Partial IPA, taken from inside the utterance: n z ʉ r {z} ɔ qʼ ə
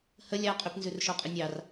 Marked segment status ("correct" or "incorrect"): incorrect